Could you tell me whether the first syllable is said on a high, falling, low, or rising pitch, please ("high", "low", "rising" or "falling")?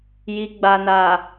low